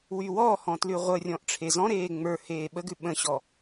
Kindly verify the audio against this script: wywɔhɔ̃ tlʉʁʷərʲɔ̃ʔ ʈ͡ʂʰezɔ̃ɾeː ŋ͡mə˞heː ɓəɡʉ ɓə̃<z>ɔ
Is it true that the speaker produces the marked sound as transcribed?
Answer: no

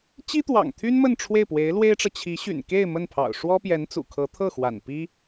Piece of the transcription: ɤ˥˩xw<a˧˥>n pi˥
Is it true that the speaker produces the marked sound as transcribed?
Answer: no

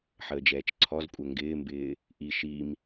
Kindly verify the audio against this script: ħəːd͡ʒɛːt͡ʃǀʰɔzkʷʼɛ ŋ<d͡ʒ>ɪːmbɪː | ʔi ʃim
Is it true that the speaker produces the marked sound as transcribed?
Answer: no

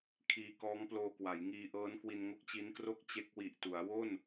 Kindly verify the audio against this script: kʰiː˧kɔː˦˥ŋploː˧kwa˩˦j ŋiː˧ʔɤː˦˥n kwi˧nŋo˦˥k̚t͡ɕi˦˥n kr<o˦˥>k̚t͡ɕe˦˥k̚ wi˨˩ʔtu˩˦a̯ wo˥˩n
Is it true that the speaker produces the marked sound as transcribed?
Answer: no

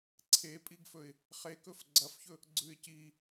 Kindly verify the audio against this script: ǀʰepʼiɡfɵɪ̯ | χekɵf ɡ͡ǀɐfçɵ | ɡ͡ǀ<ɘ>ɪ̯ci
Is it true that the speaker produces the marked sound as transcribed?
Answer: no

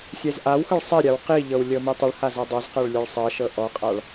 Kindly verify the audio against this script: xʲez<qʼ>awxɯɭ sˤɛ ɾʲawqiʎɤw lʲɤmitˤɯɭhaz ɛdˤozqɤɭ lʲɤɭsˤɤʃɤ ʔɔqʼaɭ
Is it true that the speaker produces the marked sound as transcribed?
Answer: no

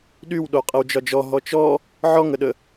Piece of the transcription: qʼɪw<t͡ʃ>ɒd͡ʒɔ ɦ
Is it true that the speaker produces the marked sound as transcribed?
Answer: no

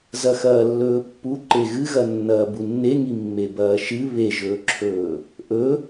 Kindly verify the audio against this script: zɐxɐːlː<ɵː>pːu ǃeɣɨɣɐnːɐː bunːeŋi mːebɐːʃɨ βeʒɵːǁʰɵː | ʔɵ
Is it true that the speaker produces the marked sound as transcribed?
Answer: yes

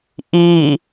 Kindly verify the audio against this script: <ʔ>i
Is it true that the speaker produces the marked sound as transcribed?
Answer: yes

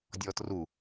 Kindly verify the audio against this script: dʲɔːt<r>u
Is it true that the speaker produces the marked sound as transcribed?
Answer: yes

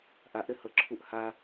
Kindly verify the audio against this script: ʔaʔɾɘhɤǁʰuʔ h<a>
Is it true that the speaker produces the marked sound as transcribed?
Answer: yes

